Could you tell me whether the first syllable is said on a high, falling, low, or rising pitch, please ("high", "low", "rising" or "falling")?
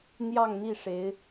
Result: falling